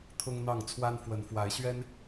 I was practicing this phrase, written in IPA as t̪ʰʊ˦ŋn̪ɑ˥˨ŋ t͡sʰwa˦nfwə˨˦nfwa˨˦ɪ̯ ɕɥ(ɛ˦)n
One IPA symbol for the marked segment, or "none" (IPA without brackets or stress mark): ɛ˦